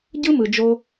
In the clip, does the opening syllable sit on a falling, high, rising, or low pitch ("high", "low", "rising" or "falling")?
high